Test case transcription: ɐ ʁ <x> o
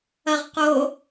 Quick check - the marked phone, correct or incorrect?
incorrect: q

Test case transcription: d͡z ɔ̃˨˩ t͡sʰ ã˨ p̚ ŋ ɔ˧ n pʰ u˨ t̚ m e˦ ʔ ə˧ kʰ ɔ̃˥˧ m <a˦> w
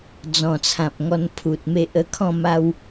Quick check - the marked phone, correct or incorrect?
incorrect: a˧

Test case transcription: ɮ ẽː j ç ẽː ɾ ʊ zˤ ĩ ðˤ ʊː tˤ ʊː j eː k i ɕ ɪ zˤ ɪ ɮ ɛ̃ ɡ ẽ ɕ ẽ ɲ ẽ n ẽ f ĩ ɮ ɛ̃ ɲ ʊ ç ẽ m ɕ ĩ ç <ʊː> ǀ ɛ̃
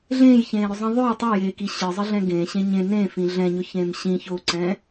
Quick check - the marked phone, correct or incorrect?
correct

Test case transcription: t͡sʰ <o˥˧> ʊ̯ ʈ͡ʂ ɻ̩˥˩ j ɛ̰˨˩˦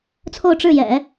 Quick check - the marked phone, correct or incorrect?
correct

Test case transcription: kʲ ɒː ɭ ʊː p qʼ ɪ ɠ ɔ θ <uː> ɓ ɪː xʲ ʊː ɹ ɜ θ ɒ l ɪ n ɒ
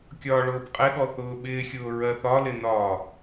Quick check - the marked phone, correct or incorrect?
incorrect: ʊː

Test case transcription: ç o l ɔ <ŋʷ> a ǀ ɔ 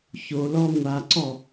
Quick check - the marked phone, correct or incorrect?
correct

